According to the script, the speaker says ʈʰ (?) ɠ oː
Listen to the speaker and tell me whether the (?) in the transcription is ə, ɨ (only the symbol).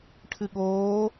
ɨ